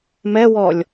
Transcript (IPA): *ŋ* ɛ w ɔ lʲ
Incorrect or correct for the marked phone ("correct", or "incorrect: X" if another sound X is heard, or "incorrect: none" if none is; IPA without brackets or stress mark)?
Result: incorrect: m